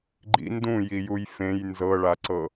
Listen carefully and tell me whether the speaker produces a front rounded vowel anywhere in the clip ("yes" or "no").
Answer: no